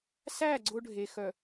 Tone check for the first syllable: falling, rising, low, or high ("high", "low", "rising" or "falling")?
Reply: falling